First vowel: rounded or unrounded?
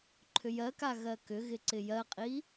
rounded